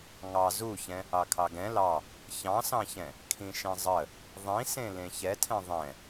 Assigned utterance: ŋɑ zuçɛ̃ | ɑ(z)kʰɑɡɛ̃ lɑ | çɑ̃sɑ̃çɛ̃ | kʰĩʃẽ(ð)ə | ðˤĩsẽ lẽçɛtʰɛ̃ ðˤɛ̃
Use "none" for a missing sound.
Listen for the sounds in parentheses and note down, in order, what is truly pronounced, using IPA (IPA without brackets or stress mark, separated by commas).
none, zˤ